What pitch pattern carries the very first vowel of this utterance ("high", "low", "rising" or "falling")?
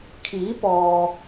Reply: rising